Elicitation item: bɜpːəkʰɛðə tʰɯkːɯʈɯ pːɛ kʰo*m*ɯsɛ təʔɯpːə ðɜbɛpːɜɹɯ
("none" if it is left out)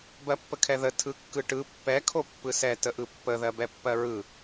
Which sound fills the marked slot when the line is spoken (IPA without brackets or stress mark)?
pː